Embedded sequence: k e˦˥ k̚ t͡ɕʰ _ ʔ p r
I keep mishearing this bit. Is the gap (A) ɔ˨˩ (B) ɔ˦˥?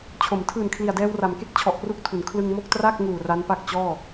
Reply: A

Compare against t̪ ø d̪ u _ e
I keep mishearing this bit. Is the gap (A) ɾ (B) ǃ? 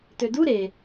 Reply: A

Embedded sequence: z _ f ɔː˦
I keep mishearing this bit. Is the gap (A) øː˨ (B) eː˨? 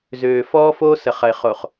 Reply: A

